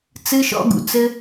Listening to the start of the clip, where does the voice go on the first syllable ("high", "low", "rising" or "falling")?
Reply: high